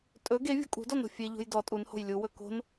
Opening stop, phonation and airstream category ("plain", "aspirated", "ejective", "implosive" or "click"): ejective